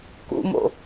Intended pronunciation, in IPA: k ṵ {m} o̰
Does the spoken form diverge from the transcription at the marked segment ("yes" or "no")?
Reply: no